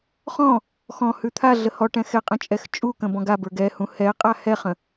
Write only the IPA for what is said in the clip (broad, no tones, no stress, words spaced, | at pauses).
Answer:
χɔ̃ | xɔ̃hʉ t̪ʰa ɮəhɔʈɛ̃ xɛqʼə̃ t͡ʃʼɛxt͡ʃʼukə̃ bɔ̃ɡabə˞ ɡɛhũ hɛqʼa hɛχə̃